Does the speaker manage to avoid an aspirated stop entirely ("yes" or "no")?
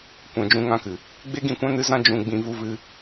yes